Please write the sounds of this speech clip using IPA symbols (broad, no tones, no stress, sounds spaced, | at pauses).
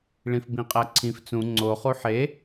ɭ ĩ f b ĩ qʼ æ ǀʰ ĩ f t͡s ũ ŋ͡ǀ o χ u ħ e